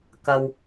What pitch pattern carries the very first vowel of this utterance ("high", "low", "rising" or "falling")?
low